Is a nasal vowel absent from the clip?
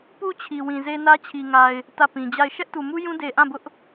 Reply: no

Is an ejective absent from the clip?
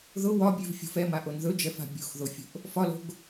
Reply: yes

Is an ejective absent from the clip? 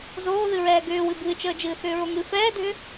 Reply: yes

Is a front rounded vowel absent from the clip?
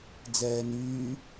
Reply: no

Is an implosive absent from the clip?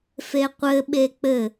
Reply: no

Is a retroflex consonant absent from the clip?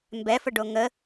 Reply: no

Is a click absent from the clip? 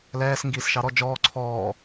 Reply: no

